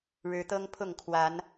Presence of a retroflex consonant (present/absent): present